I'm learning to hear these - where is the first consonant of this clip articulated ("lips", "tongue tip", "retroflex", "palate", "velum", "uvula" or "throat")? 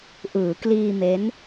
throat